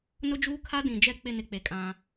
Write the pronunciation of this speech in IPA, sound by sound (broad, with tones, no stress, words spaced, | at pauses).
nʊ˦d͡ʒuː˦kʰa˦dĩ˨ d͡ʒɛ˨k͡pɪ˨ nɪ˦k͡pe˨kʼã˦